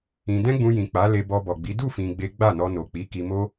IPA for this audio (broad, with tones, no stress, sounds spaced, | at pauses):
ĩ˧ d ɛ̃˦ ɡ͡b ũ˧ j ĩ˨ k͡p a˨˦ l e˧ b ɔ˧ b ɔ˨ ɡ͡b i˨˦ d u˦˨ f ĩ˧ ɡ͡b e˦ ɡ͡b a˦˨ n ɔ˧ n o˨ k͡p i˨˦ k i˧ m o˦